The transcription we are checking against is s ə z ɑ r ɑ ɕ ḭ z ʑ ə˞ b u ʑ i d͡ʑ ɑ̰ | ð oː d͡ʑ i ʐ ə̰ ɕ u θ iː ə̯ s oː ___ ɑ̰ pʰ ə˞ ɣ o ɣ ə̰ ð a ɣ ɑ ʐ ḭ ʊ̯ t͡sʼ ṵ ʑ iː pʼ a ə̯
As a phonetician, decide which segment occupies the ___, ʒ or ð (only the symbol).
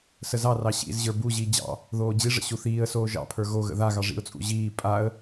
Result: ʒ